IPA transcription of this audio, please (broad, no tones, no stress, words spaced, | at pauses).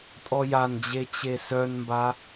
tʼɔjand͡ʑe t͡ɕesœnmba